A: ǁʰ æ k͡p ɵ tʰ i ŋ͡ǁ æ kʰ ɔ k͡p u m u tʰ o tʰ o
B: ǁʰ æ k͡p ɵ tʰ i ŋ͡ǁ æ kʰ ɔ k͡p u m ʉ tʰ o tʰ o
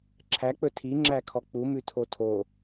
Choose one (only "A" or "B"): B